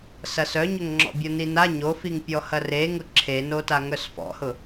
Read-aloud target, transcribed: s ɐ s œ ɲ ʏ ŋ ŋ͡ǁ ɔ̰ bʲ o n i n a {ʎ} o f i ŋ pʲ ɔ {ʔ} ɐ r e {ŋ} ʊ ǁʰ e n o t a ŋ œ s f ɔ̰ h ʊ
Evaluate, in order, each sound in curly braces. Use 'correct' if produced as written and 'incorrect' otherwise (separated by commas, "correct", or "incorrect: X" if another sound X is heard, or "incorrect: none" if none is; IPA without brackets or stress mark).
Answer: incorrect: ɲ, incorrect: h, correct